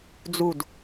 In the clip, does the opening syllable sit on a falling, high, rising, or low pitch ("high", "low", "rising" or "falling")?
falling